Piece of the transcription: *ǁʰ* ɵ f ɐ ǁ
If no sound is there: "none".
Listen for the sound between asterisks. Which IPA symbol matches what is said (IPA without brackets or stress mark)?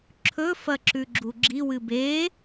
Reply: ǁʰ